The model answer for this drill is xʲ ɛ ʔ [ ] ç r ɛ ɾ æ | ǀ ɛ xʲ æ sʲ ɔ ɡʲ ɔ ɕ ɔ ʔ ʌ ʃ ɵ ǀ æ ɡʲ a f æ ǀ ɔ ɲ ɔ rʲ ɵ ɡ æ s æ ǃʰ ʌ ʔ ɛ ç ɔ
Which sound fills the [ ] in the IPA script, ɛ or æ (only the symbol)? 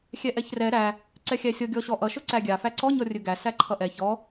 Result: ɛ